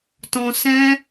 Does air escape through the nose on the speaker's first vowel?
yes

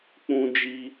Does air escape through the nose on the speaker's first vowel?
yes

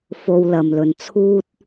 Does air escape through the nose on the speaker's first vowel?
no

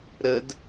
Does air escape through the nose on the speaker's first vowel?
no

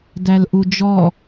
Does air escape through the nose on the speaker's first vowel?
no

